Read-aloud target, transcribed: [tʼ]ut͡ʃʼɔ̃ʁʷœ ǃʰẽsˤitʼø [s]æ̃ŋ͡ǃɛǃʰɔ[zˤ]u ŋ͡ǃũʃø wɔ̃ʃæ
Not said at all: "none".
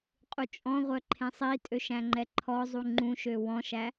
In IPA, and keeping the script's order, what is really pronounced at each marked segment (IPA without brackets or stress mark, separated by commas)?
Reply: qʼ, ʃ, zˤ